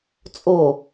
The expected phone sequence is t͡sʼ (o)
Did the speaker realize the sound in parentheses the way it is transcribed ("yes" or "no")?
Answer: yes